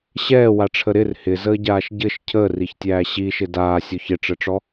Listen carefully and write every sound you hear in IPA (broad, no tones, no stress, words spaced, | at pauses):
ɕɛːwaʈ͡ʂʰə ɾɪr hɪzəːɟaːʃ ɟɘʃ cʰəːriçtʲæː ɕiʃɪ daːsʲɔç ɪʈ͡ʂɘʈ͡ʂɔ